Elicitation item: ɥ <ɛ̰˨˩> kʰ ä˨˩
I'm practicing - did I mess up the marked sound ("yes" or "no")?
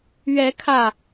yes